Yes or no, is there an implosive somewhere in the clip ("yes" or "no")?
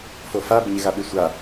yes